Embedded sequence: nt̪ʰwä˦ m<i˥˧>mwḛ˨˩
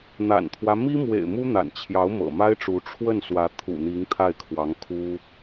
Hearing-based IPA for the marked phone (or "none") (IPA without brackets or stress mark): i˥